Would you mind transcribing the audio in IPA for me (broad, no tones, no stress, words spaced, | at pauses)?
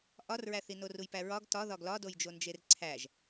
ʔɒrɹæθino rujpæɹɒɡ tɒðɒɡ lɒdojd͡ʒond͡ʒer ǀʰæʒ